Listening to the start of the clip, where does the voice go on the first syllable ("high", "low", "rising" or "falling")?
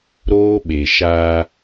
high